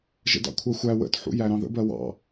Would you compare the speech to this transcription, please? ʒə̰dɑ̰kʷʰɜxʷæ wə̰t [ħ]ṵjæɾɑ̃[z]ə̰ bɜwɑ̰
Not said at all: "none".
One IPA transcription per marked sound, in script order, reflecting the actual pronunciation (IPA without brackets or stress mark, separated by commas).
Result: ħ, ð